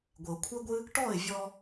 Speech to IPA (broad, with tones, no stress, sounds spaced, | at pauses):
ɡʷ ɘ˨ ʊ̯ kʷʰ ɘ˦ ɡʷ ɨ˦ | ʈ ɔ˦˨ ɪ̯ vʲ ɔ˧